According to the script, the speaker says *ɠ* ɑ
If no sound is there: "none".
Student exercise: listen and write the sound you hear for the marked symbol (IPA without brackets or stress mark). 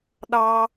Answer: ɗ